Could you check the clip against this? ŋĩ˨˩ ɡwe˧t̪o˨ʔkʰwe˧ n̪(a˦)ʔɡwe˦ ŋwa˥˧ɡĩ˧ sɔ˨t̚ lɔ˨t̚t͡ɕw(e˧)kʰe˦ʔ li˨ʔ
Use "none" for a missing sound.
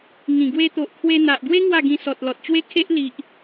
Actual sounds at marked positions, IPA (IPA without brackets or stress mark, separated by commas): a˨, e˦